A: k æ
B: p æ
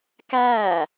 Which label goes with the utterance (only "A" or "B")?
A